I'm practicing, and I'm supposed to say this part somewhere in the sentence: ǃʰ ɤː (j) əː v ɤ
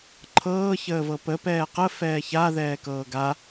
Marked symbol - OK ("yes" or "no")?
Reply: no